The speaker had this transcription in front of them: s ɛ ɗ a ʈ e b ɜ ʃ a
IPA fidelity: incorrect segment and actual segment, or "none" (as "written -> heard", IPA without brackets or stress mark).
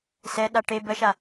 none